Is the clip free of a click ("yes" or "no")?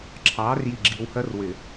no